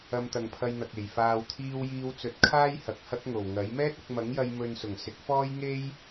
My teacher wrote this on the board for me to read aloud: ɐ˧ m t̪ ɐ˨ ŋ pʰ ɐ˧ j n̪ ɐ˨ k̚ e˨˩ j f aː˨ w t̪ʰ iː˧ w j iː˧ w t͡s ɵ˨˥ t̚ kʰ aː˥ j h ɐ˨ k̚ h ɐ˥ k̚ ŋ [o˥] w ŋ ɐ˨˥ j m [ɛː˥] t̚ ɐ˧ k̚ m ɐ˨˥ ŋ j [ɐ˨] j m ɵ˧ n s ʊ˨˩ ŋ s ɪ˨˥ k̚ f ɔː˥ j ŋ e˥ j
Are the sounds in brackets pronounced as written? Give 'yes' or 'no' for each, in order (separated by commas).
no, yes, no